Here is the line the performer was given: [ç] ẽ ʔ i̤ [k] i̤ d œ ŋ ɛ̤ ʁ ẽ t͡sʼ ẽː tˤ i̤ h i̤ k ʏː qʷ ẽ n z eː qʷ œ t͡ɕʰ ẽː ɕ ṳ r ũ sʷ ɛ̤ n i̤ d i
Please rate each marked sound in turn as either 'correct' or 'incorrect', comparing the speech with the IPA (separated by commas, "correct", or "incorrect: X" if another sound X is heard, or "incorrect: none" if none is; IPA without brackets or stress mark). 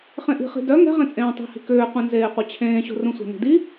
incorrect: χ, incorrect: χ